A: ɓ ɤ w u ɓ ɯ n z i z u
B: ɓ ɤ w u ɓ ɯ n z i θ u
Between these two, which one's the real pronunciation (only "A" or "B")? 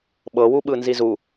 A